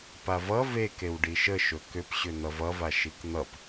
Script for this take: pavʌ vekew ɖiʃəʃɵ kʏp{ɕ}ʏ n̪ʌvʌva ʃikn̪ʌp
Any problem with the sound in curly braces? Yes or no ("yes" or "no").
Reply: no